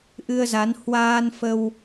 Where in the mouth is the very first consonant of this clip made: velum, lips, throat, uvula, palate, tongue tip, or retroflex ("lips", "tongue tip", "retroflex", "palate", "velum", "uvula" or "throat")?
throat